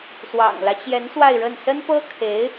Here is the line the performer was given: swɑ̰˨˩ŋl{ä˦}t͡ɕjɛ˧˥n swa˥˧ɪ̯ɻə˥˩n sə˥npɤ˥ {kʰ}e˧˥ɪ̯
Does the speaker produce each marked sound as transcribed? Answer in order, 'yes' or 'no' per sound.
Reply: yes, yes

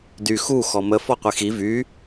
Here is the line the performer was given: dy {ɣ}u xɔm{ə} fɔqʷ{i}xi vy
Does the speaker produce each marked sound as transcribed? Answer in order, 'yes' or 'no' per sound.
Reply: no, yes, yes

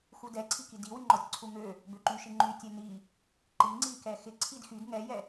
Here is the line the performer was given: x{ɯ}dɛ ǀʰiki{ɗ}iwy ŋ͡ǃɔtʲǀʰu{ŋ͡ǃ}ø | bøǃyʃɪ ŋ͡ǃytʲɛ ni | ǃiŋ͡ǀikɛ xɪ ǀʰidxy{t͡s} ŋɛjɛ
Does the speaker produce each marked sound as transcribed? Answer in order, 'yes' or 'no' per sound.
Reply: no, no, no, no

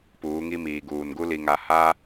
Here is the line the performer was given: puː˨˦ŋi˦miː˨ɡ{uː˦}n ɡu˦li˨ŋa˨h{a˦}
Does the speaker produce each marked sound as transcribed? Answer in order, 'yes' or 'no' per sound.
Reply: no, yes

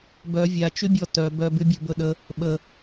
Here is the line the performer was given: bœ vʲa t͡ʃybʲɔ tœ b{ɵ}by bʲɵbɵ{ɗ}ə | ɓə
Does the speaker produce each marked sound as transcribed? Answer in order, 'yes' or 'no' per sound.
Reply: no, yes

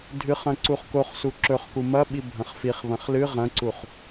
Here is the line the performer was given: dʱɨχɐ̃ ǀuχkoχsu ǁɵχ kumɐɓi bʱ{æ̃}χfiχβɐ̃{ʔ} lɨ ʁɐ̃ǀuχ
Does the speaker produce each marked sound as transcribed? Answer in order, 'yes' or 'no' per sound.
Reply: no, no

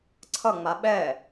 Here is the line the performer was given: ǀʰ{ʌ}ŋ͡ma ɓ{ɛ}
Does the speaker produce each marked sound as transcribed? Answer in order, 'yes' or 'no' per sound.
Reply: yes, yes

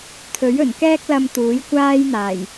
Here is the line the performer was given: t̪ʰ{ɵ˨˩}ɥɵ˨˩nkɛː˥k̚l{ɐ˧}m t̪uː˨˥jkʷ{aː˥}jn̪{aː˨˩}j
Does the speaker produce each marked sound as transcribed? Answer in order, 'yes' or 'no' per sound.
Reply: no, yes, yes, yes

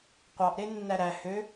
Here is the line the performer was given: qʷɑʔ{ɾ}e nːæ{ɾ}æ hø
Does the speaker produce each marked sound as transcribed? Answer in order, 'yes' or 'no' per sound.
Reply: yes, yes

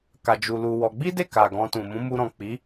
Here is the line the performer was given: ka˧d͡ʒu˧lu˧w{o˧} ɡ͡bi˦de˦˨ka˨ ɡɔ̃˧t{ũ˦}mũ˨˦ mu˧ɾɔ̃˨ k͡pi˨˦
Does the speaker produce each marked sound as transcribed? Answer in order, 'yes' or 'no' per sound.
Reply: no, no

